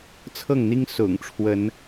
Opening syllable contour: falling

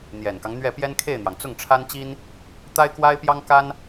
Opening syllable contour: low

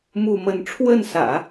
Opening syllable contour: falling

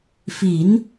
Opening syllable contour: rising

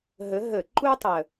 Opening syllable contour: rising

